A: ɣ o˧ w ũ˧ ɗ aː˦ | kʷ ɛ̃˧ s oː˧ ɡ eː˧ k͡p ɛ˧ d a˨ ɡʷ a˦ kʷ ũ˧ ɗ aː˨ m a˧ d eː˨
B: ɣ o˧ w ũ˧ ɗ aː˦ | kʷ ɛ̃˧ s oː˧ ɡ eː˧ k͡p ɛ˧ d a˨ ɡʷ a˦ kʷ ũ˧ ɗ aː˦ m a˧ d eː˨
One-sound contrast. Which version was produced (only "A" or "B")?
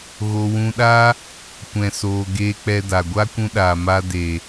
A